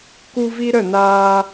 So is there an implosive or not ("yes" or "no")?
no